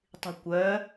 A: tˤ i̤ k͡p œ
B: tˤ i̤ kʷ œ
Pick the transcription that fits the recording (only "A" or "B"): B